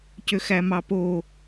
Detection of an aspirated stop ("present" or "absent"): absent